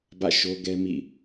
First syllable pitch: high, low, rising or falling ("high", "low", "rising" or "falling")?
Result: falling